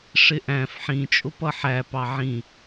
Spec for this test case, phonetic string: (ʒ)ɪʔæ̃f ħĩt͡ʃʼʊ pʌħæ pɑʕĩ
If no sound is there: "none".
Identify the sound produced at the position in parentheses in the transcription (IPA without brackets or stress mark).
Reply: ʂ